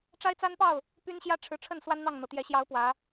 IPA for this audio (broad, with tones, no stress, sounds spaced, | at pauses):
ʈ͡ʂ a˦ ɪ̯ t͡s a˦ n p ɑ˥˨ ʊ̯ | p y˦ n ɕ j ä˦ ʈ͡ʂʰ ɻ̩˨ ʈ͡ʂʰ ə˥˨ n s w a˦ n n̪ ɑ˥˨ ŋ n̪ ɤ˩ t̪ j ɛ˨˦ ɕ j ɑ˨˦ ʊ̯ p w ä˨˦